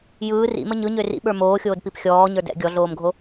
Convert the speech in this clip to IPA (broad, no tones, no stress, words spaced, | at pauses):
jɯː rḭmə ɲɯɲø rḭɓə˞ moːxʲoːdpip xʲɔːɲə˞ dɛ̰ ɡʲɔɮoːmɡʱo